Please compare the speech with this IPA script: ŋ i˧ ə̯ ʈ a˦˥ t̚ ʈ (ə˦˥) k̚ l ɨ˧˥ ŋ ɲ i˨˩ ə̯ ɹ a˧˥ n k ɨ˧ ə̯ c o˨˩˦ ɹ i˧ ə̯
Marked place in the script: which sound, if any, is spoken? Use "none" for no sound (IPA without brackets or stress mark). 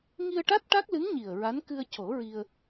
a˦˥